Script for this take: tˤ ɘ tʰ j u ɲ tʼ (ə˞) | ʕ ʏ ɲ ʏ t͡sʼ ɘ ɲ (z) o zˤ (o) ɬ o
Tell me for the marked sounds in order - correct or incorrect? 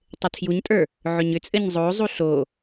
correct, incorrect, incorrect

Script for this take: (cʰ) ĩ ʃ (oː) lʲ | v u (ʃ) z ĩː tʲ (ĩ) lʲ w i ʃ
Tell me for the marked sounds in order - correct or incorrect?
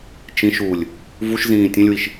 incorrect, incorrect, correct, incorrect

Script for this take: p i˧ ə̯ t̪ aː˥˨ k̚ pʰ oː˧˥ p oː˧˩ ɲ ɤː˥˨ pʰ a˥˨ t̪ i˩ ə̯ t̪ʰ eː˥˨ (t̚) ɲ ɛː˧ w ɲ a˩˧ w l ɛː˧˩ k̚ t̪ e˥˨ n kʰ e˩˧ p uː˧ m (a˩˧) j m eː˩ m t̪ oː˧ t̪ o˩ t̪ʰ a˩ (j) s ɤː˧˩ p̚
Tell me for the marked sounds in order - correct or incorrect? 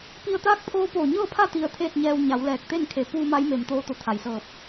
correct, incorrect, correct

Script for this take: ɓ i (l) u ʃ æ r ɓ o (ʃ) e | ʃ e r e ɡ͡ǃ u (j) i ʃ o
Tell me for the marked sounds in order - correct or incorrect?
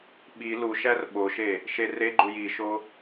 correct, correct, correct

